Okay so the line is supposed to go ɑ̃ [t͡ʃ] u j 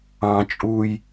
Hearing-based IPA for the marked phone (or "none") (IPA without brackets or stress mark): t͡ʃʼ